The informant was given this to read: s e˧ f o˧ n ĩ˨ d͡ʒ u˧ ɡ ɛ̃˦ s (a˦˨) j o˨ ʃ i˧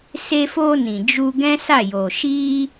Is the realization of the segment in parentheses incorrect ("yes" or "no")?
no